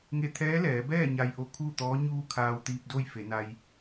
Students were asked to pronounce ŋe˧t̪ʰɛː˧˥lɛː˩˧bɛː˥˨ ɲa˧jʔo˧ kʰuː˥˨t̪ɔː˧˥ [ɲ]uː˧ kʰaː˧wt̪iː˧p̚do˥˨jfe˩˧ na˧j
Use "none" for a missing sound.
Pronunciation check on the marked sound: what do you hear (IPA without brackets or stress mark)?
ɲ